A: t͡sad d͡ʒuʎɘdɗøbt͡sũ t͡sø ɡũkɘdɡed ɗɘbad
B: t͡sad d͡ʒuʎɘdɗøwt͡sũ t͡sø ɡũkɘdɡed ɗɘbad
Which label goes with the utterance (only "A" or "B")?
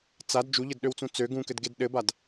B